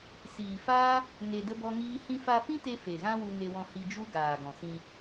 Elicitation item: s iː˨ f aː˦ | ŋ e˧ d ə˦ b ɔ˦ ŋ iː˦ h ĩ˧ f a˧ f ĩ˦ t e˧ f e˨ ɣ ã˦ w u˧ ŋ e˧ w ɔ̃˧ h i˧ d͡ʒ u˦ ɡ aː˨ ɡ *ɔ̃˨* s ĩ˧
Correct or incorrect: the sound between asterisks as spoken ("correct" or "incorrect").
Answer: correct